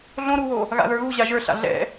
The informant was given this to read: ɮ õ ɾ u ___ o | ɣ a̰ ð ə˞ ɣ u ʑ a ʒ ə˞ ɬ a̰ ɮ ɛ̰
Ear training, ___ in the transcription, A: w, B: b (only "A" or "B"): A